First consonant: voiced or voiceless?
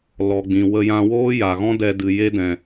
voiced